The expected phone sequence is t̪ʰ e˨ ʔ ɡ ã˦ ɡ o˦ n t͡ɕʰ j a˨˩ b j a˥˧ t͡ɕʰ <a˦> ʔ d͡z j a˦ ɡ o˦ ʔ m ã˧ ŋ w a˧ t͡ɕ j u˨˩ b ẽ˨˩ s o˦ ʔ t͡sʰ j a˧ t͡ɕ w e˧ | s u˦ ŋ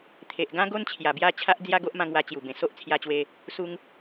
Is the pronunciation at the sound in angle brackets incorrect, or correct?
correct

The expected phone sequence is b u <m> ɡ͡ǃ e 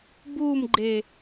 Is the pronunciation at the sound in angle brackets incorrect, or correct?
correct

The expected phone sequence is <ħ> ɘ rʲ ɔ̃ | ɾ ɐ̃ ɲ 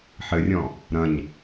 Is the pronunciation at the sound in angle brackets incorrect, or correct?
correct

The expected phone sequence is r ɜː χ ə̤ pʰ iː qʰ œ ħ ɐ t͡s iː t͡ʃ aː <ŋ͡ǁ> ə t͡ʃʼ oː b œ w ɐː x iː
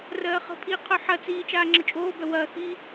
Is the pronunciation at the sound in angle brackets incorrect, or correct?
correct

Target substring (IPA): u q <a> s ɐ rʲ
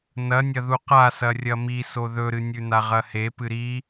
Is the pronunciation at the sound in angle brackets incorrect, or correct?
correct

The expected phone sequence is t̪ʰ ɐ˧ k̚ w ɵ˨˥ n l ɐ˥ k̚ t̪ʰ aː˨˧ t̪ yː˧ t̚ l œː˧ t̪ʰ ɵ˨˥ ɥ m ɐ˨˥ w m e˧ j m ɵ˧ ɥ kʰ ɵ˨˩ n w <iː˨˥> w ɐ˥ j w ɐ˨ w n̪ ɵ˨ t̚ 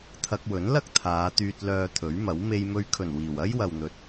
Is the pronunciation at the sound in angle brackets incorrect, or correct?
incorrect: iː˨˩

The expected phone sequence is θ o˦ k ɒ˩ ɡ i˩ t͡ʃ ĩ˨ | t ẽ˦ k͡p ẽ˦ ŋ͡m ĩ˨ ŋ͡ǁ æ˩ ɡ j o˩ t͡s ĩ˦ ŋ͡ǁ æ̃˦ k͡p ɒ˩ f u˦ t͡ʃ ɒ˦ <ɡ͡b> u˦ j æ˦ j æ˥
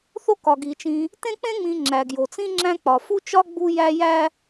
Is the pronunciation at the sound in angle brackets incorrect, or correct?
correct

